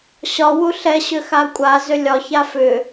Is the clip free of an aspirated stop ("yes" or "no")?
yes